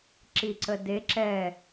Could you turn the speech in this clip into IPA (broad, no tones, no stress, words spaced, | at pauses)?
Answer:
ǁiǀəde ǁɛ